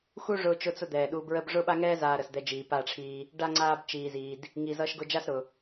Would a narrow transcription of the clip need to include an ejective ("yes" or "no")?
no